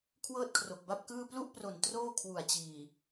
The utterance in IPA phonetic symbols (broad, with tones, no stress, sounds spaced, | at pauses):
kʰ w ɤː˥˩ t̚ kʰ r o˨˩ k̚ b a˥˩ p̚ k ɯː˥˩ p l u˥˩ ʔ p r o˨˩ n t r oː˥˩ kʰ w u˨˩ a̯ t͡ɕ iː˨˩